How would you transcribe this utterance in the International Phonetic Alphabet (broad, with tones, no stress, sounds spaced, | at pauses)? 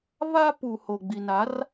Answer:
β a˦ p u˨ h o˨ ɡ͡b i˨ n a˨˦ r